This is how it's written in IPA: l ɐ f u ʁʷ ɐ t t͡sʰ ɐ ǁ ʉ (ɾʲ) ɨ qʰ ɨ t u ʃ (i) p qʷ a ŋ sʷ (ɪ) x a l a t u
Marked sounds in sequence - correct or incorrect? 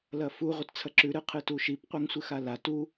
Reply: incorrect, correct, incorrect

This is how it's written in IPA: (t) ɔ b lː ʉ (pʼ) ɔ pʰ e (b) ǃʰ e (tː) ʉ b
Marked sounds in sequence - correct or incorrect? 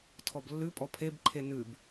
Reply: incorrect, correct, correct, incorrect

